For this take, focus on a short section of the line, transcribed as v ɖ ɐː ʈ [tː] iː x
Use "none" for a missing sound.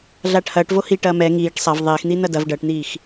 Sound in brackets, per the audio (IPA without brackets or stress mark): n̪